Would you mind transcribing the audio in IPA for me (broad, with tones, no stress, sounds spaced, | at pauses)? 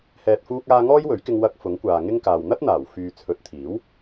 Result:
h ɛː˨ t̚ f uː˧ k̚ aː˧ ŋ ɔː˥ j w ɵ˨˥ ɥ k ɪ˧ ŋ w ɐ˧ k̚ f ʊ˨˥ ŋ kʷ aː˨ ŋ ɪ˥ ŋ k aː˨ w n̪ ɐ˥ t̚ n̪ aː˨˩ w f yː˨ t͡sʰ ɵ˨˥ t̚ t̪ʰ iː˨˥ w